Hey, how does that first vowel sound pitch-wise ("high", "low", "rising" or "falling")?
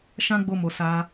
high